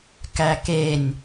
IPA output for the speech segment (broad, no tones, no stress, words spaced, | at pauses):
kækenʲ